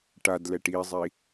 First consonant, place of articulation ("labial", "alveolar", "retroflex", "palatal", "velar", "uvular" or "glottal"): retroflex